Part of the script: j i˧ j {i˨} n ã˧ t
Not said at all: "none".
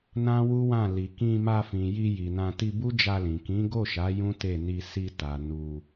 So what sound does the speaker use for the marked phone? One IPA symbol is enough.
i˨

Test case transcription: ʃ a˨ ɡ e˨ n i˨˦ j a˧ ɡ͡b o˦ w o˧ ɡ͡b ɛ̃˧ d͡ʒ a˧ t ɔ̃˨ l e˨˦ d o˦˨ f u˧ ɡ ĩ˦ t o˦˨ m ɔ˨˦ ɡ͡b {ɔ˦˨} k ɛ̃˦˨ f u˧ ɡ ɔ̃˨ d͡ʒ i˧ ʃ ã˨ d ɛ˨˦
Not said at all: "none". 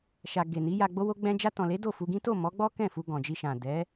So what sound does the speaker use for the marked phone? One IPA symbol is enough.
ɔ˦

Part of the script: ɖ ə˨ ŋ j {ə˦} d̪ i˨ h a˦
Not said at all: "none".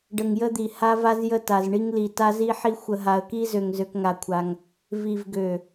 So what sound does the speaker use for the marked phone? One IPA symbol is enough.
ə˦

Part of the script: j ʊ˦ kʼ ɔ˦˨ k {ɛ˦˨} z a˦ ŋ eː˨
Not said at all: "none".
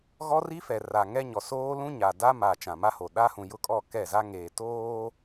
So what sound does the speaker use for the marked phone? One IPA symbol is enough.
ɛ˦˨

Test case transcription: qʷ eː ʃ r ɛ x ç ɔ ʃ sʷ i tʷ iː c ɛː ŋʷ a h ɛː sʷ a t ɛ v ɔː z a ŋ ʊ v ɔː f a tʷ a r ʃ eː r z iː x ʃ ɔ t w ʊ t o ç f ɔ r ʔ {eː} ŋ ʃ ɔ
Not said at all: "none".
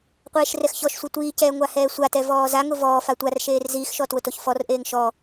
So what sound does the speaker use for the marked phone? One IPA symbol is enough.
eː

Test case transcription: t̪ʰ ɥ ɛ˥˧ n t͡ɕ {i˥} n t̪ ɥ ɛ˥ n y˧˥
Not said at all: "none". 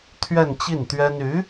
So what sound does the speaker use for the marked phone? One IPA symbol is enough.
i˥˩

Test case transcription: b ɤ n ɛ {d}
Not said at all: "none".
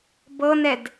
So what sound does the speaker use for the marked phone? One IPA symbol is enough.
d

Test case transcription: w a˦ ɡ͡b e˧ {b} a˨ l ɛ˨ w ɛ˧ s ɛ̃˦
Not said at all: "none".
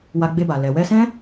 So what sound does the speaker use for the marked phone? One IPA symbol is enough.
b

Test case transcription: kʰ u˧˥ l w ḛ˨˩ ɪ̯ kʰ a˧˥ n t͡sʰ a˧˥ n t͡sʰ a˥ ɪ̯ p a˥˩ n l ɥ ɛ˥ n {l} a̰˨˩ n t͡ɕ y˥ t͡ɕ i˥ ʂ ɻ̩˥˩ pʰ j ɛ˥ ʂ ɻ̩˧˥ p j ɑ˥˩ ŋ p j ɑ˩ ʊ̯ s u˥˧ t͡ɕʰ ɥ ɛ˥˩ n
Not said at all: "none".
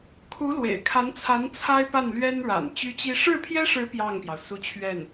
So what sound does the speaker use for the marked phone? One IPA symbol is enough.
ɻ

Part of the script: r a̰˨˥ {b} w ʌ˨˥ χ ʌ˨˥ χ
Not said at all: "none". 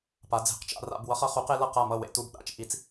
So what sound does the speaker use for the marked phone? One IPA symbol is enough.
b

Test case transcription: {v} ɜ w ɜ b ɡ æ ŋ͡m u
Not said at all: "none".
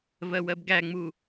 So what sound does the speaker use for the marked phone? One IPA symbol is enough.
v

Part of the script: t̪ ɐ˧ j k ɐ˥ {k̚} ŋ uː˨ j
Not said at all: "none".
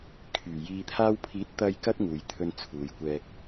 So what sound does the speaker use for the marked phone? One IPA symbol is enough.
t̚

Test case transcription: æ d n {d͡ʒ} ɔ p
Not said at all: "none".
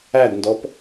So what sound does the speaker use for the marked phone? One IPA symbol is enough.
d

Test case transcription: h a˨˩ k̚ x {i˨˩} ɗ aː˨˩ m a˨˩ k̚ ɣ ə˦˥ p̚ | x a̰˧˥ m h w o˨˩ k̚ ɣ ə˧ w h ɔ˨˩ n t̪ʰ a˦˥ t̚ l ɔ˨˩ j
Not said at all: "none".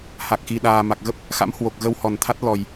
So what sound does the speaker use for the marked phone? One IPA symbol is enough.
i˨˩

